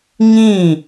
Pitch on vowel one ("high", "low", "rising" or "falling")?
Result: falling